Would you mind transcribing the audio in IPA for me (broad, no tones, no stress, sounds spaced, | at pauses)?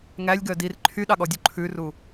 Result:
ŋ æ lʲ ɡ œ d i r ǃʰ y ɗ ɑ ɠ ɔ dʲ u ǃʰ ʉ r u